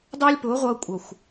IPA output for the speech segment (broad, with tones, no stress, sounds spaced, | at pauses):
dˤ ʊː˦ lʲ p ʊː˨˦ ʁʷ ʌː˧ kʷʼ ʌ˨ xʷ